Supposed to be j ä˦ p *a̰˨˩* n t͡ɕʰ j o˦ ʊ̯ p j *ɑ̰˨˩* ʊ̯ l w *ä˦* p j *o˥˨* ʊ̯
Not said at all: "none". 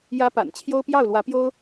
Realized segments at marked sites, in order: a̰˨˩, ɑ˥˨, ä˨˦, o˦

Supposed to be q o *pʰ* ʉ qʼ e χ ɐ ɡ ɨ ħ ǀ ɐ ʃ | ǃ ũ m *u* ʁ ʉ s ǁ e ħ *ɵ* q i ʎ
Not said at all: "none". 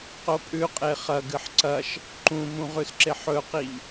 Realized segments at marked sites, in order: pʼ, ũ, ɵ

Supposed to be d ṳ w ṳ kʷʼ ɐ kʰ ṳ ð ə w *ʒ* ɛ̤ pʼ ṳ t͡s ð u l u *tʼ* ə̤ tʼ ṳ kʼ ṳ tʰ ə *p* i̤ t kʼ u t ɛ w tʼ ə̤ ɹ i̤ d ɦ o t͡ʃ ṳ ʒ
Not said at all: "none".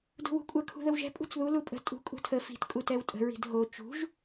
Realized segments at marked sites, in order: ʒ, pʼ, f

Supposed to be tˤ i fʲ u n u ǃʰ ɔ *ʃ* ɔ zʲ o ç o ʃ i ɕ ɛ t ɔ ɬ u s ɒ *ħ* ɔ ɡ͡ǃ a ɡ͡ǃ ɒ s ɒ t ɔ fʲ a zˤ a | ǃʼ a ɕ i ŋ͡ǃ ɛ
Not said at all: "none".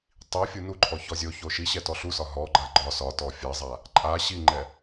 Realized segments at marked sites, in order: ç, ɦ

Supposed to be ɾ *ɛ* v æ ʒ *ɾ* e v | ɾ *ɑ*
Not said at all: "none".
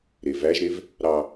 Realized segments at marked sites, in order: e, ɾ, ɑ

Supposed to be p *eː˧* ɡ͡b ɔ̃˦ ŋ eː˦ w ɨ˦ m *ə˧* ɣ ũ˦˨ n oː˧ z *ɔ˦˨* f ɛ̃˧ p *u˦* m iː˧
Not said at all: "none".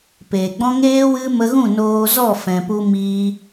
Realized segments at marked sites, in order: eː˨, ə˧, ɔ˦˨, u˦

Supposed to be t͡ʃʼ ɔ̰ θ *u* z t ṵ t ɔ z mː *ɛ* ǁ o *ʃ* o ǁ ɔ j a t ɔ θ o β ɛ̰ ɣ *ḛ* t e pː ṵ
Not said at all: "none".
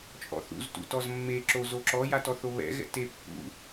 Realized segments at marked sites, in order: ṵ, e, z, ɛ̰

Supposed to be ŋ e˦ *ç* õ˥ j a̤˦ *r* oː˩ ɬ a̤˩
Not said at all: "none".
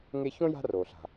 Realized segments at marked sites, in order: ç, r

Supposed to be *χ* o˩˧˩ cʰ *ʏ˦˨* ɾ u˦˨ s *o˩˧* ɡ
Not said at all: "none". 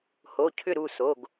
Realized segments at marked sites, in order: h, ʏ˦˨, o˩˧˩

